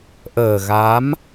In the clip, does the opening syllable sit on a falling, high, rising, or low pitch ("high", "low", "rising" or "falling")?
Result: low